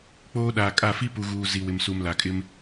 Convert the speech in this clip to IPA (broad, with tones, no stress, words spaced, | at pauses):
k͡poː˦ɗaː˨kʼa˦˨ fi˦pu˨ ɣuː˨ zi˨wɪ˨msu˨m la˨kʼɪ˦m